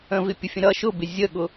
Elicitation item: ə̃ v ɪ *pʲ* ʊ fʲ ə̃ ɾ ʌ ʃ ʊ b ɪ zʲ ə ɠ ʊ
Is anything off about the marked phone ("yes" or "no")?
no